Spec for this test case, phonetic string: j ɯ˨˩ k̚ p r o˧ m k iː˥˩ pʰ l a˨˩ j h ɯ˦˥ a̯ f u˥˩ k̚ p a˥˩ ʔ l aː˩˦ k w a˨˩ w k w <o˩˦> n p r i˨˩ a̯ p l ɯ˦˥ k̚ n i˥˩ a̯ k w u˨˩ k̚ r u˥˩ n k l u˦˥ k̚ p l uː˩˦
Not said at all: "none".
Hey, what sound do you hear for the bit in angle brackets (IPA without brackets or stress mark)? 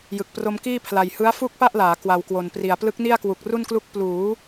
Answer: o˨˩